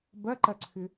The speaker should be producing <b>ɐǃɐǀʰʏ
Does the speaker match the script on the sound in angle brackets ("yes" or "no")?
yes